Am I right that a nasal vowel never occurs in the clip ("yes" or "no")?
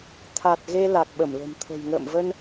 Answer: yes